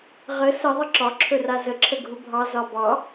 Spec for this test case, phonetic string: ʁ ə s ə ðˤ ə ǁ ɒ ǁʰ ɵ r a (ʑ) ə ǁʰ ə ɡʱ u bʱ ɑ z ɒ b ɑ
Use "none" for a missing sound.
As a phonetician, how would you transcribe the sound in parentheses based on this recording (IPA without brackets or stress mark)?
z